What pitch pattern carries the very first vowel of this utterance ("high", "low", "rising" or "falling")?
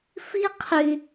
high